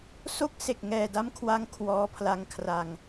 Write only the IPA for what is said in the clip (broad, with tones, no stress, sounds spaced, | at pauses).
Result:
s o˦˥ k̚ s e˨˩ k̚ ŋ ɛː˨˩ d a˦˥ m kʰ w a˦˥ ŋ kʰ w ɔː˧ pʰ l a˧ ŋ kʰ r a˧ ŋ